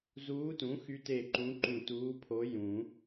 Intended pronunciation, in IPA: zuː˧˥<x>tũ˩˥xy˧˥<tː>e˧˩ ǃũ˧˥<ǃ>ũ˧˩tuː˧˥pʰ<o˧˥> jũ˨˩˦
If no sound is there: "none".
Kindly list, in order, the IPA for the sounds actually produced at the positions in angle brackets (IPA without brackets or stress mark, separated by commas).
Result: none, t, ǃ, o˧˥